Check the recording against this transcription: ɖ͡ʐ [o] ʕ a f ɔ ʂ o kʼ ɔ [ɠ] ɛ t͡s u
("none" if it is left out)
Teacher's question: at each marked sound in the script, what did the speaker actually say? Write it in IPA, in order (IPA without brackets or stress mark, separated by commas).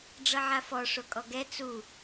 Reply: ɤ, ɡ